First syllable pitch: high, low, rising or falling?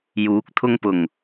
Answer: rising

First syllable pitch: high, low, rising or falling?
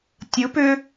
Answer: rising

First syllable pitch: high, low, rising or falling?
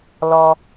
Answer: low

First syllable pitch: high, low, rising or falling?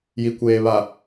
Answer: low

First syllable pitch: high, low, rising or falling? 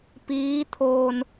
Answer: rising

